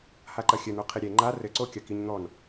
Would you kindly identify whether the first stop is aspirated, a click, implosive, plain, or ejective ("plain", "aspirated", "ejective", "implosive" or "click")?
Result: click